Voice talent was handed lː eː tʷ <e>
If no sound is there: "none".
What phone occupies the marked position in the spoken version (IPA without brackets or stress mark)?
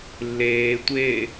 eː